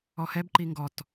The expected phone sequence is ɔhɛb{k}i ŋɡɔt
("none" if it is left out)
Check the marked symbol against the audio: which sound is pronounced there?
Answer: ǃ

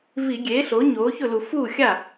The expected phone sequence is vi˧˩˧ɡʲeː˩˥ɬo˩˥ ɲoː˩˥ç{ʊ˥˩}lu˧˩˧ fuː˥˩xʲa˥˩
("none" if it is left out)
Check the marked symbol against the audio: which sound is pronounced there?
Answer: ʊ˥˩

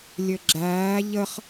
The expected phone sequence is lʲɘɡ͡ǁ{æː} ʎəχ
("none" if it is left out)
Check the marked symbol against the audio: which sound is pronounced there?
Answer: æː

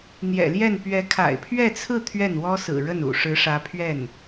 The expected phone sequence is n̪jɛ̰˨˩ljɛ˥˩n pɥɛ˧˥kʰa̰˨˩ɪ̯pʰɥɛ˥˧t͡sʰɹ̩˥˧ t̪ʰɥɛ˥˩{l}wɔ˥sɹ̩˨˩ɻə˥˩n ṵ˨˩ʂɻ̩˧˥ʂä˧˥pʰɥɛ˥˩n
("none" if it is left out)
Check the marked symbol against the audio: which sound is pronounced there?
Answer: n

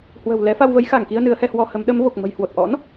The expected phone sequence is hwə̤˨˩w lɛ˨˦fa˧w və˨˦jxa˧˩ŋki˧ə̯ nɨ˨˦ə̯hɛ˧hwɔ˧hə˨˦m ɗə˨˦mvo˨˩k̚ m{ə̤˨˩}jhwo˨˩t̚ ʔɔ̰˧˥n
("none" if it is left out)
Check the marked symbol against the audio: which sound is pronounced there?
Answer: ə̤˨˩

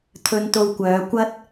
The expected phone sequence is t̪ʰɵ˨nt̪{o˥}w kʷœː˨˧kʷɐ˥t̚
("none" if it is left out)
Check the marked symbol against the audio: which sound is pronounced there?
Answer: o˨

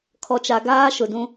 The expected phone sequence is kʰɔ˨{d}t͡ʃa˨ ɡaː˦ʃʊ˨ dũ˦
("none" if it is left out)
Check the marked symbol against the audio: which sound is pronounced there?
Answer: none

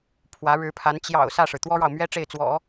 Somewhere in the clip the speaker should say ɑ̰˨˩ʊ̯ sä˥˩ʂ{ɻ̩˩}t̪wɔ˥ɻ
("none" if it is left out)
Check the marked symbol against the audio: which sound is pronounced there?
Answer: ɻ̩˩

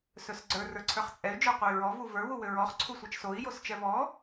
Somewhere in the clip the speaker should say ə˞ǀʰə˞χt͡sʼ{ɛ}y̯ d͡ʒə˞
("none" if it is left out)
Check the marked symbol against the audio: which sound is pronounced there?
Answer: ɛ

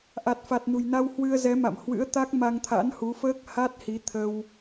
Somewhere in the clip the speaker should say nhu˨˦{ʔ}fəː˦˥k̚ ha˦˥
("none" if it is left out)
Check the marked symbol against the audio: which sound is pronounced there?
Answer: none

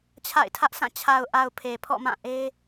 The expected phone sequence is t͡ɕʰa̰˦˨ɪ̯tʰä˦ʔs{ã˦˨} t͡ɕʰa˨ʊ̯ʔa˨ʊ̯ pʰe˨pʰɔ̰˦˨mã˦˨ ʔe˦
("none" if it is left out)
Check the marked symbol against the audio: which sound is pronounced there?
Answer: ã˦˨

